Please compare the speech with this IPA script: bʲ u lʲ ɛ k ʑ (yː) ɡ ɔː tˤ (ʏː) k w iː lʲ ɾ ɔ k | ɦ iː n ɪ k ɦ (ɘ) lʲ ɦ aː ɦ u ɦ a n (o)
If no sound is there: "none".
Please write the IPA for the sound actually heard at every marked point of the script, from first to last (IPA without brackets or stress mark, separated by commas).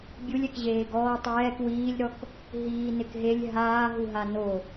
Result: eː, ɛː, e, o